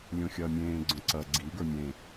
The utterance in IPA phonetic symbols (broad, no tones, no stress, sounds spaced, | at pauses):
lʲ õ xʲ ɐː mʲ ẽː ɡ͡ǀ õ ǀ ɐ ɡ͡ǀ i ɡ ə˞ mʲ ẽ